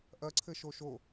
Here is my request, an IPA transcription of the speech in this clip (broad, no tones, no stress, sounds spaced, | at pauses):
ʔ ɐ ǀʰ ɘ ʃ o ʃ o